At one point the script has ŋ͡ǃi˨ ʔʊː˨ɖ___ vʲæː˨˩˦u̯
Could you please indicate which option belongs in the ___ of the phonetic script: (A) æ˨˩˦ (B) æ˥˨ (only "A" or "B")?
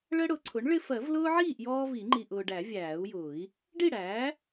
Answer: A